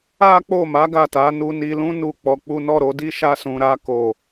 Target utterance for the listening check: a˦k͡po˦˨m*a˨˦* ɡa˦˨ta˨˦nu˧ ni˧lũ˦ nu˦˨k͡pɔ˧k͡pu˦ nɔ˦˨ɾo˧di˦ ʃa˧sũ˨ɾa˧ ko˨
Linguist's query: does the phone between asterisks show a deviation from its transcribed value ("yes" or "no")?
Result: no